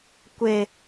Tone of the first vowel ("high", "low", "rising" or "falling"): high